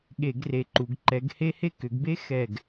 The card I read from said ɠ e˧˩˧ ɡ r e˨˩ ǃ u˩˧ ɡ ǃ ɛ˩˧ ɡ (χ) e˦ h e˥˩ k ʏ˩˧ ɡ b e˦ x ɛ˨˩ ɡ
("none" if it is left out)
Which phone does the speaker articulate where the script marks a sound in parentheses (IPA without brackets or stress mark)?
h